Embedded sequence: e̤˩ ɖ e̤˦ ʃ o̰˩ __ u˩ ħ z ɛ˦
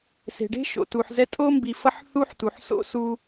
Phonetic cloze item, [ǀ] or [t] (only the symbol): t